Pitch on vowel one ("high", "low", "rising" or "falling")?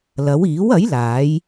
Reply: rising